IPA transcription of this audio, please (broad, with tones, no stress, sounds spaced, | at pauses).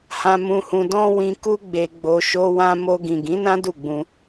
h ã˧ m ũ˧ h ũ˧ d ɔ̃˦ w ĩ˧ k u˦ ɡ͡b e˧ ɡ͡b o˧ ʃ o˧ w ã˧ m o˧ ɡ ĩ˨ ɡ ĩ˨˦ n ã˦ d u˦˨ ɡ͡b ũ˧